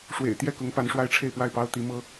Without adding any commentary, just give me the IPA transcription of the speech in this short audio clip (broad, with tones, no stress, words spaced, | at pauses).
ʂwḛ˨˩ɪ̯t̪jɛ˥˩kʊ˧˥ŋ pa˧˥nʂwa˥ɪ̯ʈ͡ʂʰe˥˧ɪ̯pwa˥˩ɪ̯ pɑ˥ʊ̯ t̪i˧˥mɤ˥